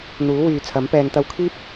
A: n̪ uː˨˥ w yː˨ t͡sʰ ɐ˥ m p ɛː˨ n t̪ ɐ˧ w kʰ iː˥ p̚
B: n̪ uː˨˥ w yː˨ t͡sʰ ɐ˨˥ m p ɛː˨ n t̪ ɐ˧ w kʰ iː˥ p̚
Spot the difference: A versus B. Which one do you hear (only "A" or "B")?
B